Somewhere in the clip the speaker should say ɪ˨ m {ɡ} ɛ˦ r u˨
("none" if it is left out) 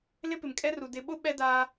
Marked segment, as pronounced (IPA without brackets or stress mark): kʼ